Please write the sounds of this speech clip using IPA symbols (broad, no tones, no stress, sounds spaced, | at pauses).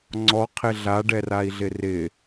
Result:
ŋ͡ǀ ɔ qʰ ɪ ɮ a ɖ ɛ r a i̯ ɮ ɪ r ɪ